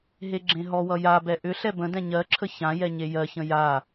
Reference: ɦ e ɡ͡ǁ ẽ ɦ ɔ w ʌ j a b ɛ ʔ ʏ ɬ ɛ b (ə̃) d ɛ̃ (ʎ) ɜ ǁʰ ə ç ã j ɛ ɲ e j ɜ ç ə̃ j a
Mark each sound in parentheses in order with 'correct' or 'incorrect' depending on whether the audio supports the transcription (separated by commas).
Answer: correct, incorrect